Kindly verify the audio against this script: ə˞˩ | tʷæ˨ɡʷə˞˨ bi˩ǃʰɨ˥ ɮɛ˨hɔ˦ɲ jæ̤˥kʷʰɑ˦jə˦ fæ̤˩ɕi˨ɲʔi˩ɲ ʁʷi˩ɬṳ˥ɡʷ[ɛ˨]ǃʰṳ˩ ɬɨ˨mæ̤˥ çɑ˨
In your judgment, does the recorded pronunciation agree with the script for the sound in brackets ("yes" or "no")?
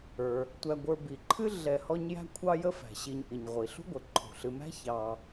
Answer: no